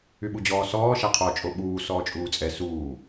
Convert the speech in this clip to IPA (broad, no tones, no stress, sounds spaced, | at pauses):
y ɓ u d͡ʑ ɔː s ɔː ʃ a qʰ ɔ t͡ʃʼ o ɓ uː s ɔː t͡ʃʼ uː t͡sʼ ɛ s uː